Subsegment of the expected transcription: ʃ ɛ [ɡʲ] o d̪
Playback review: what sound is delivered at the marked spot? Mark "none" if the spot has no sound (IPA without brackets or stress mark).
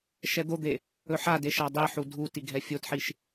d̪